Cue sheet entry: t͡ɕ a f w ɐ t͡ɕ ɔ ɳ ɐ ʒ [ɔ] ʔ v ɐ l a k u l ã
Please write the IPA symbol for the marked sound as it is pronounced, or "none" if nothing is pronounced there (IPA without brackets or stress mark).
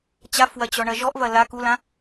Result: ɔ